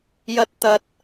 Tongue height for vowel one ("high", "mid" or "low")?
low